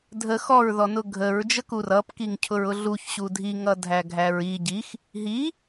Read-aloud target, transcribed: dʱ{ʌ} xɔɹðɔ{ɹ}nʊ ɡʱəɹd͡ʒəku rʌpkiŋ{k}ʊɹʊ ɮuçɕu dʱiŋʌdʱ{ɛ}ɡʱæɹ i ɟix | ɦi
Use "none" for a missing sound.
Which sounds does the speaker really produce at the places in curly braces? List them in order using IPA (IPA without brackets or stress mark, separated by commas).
ə, none, cʰ, æ